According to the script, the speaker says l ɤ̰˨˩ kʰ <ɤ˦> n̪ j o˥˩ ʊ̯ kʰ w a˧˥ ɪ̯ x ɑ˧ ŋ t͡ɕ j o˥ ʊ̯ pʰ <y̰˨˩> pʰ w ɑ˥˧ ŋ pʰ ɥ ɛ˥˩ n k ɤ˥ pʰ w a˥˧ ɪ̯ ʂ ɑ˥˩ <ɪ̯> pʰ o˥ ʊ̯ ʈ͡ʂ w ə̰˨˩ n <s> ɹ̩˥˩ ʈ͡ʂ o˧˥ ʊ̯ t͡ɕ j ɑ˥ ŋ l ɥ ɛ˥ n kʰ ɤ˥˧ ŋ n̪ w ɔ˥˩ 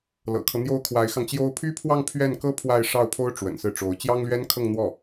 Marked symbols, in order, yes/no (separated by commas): yes, no, no, yes